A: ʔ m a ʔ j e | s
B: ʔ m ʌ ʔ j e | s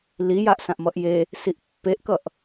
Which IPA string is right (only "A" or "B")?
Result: B